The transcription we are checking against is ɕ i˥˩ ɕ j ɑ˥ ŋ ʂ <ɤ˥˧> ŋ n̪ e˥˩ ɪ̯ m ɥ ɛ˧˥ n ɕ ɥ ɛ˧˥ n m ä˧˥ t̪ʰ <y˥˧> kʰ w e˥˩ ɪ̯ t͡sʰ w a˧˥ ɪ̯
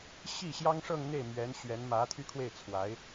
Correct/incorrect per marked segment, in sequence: correct, correct

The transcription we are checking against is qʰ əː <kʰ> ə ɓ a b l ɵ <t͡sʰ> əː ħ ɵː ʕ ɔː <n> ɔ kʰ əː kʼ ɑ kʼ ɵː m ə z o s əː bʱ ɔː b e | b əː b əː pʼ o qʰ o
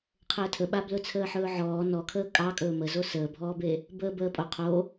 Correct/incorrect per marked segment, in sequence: incorrect: tʰ, correct, correct

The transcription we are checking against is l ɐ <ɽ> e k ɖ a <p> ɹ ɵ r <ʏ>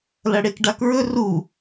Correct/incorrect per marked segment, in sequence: correct, incorrect: k, incorrect: u

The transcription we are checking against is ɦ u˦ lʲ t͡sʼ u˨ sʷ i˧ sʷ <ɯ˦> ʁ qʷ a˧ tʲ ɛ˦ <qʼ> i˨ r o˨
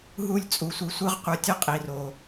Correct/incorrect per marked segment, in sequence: correct, correct

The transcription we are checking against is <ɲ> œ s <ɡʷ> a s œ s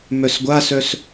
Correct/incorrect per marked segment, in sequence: incorrect: m, correct

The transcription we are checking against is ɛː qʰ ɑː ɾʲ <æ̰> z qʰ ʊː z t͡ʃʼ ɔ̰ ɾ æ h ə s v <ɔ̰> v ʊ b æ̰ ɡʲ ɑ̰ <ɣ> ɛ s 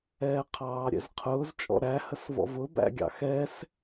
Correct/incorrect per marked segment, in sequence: incorrect: ɛ̰, correct, incorrect: x

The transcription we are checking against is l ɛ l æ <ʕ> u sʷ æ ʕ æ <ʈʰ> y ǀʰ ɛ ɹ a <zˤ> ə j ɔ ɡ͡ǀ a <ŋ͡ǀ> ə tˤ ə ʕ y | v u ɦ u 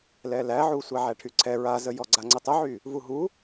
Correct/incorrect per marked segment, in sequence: correct, correct, incorrect: z, correct

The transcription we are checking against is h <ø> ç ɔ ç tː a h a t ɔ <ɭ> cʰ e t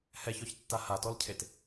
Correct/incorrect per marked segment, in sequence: incorrect: ɛ, incorrect: l

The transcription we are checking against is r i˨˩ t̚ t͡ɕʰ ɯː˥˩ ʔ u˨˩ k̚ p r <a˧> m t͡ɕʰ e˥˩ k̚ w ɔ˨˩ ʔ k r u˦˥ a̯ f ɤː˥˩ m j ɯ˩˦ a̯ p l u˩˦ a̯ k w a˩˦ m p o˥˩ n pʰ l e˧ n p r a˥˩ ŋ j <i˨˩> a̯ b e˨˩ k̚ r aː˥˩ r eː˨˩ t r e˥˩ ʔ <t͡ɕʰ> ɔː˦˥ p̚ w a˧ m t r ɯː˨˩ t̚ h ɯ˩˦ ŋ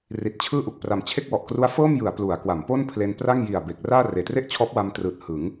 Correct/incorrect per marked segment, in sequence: incorrect: a˨˩, correct, correct

